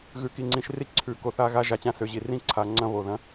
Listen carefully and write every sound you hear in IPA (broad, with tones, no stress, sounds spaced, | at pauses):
ɣ ʉ˨ k i˨ ŋ͡ǀ ĩ˨ ʃ r i˦ ǀʰ ʉ˨ k o˨ θ a˦ ɣ a˦ ʒ a˨ t͡ɕ ã˦ s ø˨ ʑ i˨ r ĩ˦ ǀʰ a˨ ŋ͡ǀ ɐ̃˦ β o˨ ð ɐ̃˦